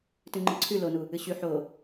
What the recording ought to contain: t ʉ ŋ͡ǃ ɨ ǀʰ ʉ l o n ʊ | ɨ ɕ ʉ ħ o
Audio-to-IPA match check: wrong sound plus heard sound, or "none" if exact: ʊ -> u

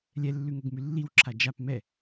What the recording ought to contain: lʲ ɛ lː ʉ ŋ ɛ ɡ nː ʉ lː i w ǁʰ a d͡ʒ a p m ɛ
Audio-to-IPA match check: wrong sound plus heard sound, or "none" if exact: nː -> m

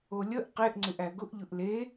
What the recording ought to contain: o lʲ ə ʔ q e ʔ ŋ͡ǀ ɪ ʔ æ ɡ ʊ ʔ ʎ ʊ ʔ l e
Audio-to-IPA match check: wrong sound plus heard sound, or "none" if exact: none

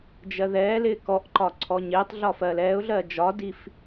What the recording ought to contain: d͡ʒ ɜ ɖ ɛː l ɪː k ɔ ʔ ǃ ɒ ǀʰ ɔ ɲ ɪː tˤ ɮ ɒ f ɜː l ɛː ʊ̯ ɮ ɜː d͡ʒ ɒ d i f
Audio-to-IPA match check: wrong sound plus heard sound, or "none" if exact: ɖ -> ð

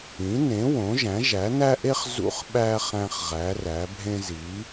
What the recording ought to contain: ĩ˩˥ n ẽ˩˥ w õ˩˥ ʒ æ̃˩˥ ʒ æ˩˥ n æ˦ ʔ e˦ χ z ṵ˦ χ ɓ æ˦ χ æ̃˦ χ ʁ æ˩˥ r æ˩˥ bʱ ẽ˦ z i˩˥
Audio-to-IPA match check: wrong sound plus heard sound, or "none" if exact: none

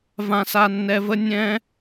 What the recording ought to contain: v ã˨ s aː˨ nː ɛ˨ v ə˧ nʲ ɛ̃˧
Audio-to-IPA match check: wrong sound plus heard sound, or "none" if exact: aː˨ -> a˨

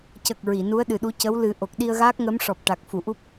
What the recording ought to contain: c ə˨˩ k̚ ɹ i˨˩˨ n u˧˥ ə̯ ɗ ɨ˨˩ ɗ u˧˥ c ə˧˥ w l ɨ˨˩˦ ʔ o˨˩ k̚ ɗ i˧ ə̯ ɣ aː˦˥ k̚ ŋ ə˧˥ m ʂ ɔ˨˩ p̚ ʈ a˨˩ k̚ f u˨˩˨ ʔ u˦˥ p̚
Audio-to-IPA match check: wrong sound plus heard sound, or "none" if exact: none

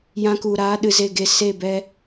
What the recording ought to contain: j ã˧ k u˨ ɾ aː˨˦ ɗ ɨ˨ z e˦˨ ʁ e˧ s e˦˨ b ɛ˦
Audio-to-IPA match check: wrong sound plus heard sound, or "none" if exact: ʁ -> ɡ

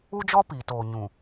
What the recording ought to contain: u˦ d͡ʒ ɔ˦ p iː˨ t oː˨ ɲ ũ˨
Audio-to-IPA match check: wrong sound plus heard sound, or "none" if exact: none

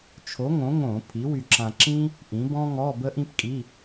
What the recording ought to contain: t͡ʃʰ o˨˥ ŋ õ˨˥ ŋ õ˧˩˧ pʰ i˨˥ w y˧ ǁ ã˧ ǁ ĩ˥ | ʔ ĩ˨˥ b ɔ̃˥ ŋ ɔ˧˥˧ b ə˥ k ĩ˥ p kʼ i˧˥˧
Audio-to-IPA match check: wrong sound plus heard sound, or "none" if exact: k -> ʔ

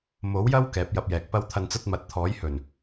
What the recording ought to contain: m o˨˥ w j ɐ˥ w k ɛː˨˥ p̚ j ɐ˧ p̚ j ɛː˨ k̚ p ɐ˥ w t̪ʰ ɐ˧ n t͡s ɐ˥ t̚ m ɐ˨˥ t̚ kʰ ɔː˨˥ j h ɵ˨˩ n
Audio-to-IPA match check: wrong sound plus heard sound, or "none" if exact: kʰ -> t̪ʰ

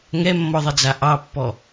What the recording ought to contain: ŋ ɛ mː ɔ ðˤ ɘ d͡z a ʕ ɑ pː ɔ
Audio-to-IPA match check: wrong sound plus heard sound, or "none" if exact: ʕ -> ʔ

